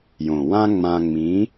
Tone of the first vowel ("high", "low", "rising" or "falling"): low